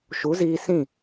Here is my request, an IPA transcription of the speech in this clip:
ʃ u˨˦ z iː˧ s ĩ˦˨

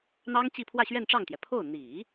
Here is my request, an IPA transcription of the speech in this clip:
n̪ ɑ˥ ŋ t͡ɕ i˥˧ pʰ w ä˥˧ ɕ ɥ ɛ˥˧ n ʈ͡ʂ ɑ˥˩ ŋ t̪ j ɛ˩ pʰ o˥˩ ʊ̯ n̪ i˨˩˦

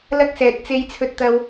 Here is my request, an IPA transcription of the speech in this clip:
l ɐ˥ k̚ s ɛː˧ t̚ t͡s e˥ j t͡sʰ ɵ˥ t̚ t̪ ɐ˥ w

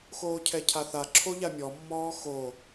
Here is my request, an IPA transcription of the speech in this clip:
x oː cʰ ɛ cʰ a θ a ǁʰ o ʎ a mʲ ɔ mː ɔː x o

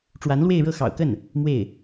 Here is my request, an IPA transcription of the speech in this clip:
ʈ͡ʂ w a˧˥ n l w e˥˧ ɪ̯ ɻ ɤ˥˩ x ɑ̰˨˩ ʊ̯ k ə˥˩ n | m w e˥˩ ɪ̯

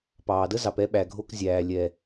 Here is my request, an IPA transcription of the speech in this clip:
p ɑː˨ d ə˦ z ɑ˨ p ɛ˧ ɓ æ˨ ɡʱ o˧ k zʲ æː˨ lʲ ɛ˨

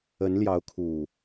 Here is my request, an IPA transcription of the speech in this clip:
ə˨˦ n l j ɑ˨˦ ʊ̯ kʰ u˨˩

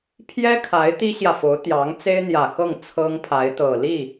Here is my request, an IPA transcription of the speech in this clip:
pʰ j ɛ˥ kʰ a˧˥ ɪ̯ t̪ i˥ ɕ j ä˨ f o˧˥ ʊ̯ t̪ j ɑ˧˥ ŋ t͡s e˥ ɪ̯ n̪ j ä˨˩ x ɤ˥˩ ŋ t͡sʰ ɤ˥ ŋ pʰ a˧˥ ɪ̯ t̪ ɤ˨˩ l i˥˩

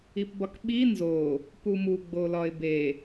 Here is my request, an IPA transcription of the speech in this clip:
i p b ɒ k ɓ i n z o | p u m u ɡ͡b o l ɒ ɪ̯ b e

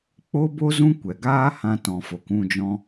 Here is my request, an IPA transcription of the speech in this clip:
k͡p o˦ b o˦ z ũ˦ kʷ ɛ˨ ɡ aː˦ h ã˧ t ɔ̃˨ f o˨ k ũ˦˨ d͡ʒ ɔ̃˧

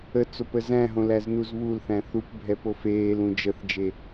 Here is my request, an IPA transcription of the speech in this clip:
ə t͡s o p ə z æ̃ ɦ õ l æ z n u z β u l θ æ̃ θ u p bʱ ɛ p o f eː l ũ d͡ʒ ə θ d͡ʒ e

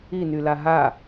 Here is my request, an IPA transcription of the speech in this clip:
i n y l a ɦ a

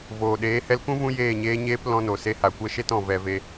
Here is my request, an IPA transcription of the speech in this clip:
v oː˨ ɗ eː˨˦ h ɛ˧ l k ũ˦ v ũ˧ j eː˦˨ ɲ eː˦ ɲ eː˦ p l ɔ̃˧ n o˨ s e˧ h a˨ kʷ ɛ˦ ʃ e˦ t ɔ̃˨ v ɛ˧ v e˧

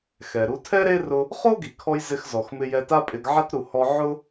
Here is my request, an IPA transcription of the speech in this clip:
x ɛ˩ ɾ u˧ tʰ ɛ˥ ɾ e˥ r ʊ˧ | χ o˥ ɡ i˩ kʰ ɔ˧ j z ɪ˧ x z ɔ˩ x m ɪ˧ j ɛ˧ t a˥ pʼ ɪ˧ ɡ ʕ a˥ t ɾ u˩ h ɔ˧ ʕ ʊ˥

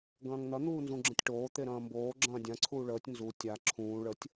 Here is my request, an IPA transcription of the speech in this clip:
ɡ ɐ̃ː ŋ n̪ ɐ n̪ uː n z ũ ɡ͡ǁ ə̃ tʲ ʈ oː t̪ e ɾ ɐ̃ː m b oː ɡ͡ǁ ɐ̃ː dʲ ã ǀʰ uː ɭ əː tʲ n z u tʲ a ǁʰ ũː ɭ ə tʲ

